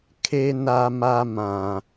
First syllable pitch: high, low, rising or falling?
high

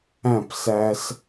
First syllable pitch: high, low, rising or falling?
falling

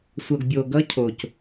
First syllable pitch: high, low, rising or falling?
low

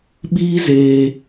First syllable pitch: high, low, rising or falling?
high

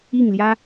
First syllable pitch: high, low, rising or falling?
falling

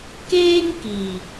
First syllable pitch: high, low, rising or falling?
high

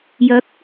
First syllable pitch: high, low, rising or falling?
rising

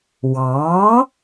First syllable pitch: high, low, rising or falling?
rising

